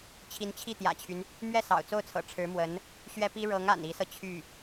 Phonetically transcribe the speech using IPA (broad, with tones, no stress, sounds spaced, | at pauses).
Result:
t͡ɕʰ i˧˥ n t͡ɕʰ i˥˩ t̪ j ä̰˨˩ t͡ɕʰ y˦ n | m ɥ ɛ˥˩ s ɑ̰˨˩ ʊ̯ t͡s o˥˩ ʊ̯ t͡sʰ ɤ̰˨˩ ʈ͡ʂʰ ɻ̩˧˥ m w ə˧˥ n | ɕ ɥ ɛ˥ p i˥ ɻ ɤ˧˥ ŋ a̰˨˩ n i˧˥ s ɤ˧ t͡ɕʰ y˥˩